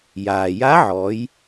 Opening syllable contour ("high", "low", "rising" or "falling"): low